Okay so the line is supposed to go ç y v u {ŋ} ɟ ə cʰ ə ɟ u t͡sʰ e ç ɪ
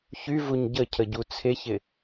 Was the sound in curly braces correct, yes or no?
no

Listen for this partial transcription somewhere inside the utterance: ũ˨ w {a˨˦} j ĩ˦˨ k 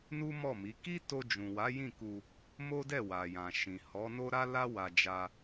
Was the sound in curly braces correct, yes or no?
yes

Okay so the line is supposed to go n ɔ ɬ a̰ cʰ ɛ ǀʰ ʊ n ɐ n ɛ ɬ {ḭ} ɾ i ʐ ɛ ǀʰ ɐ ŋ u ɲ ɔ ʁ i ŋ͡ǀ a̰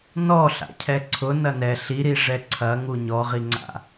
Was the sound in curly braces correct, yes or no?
no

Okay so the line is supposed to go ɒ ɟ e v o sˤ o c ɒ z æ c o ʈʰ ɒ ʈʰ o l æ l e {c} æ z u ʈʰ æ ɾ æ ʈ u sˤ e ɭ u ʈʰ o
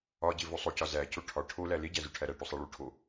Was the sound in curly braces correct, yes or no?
no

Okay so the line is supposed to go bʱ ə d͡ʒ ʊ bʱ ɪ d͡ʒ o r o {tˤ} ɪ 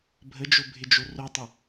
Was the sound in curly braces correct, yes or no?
yes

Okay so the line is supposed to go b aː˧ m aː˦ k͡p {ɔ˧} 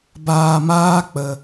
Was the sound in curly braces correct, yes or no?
no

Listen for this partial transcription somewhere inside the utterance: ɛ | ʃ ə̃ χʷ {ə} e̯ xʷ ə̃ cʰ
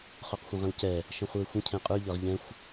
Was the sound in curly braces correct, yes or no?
no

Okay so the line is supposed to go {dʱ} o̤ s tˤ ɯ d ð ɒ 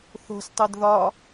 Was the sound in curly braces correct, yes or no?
no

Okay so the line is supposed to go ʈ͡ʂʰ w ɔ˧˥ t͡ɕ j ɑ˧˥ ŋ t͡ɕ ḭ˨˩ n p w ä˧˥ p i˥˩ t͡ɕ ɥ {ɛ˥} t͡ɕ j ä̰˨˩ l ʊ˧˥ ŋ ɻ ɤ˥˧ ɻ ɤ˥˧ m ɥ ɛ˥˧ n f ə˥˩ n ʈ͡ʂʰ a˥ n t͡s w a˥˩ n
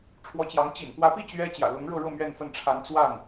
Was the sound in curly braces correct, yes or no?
yes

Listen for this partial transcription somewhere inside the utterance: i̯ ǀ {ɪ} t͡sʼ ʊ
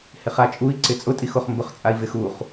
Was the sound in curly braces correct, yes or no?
yes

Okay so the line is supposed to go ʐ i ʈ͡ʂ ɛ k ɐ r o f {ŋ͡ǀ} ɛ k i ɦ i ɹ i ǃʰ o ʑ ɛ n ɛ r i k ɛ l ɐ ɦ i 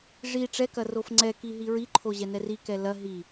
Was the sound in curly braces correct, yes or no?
yes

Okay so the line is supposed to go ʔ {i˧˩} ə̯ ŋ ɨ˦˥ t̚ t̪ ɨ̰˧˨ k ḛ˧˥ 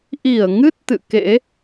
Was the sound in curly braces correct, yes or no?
yes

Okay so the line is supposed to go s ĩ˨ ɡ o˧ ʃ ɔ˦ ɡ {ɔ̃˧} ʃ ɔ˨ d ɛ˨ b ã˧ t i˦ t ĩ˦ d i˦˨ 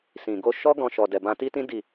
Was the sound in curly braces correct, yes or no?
yes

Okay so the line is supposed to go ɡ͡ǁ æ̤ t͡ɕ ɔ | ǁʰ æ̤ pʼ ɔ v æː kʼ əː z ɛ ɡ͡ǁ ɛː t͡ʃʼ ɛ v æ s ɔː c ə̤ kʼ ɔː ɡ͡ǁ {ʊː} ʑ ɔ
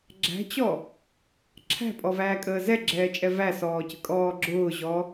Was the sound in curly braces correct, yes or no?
yes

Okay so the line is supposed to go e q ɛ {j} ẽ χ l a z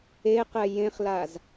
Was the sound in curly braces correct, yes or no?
yes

